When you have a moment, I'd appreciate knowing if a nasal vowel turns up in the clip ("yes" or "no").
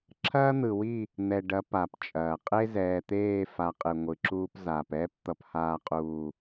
no